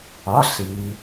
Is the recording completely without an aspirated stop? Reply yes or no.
yes